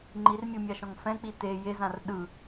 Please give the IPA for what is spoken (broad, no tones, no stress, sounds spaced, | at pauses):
ŋ͡ǃ i r mʲ ɯ mʲ a ʃ ɔ̃ ŋ f ɛ̃ k͡p i t e j e z ã r ɗ ɯ